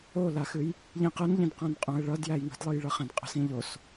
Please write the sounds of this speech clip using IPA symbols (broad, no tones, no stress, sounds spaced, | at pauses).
o l a x ɨ j | ʎ ĩ q ə n ʎ ĩ d q ã n qʼ õ ə̯ ɭ ʌ d j æ j ŋ ə̤ d lˠ ɨ j ɭ ʌ χ ã d qʼ ə̤ s ĩ ʎ o s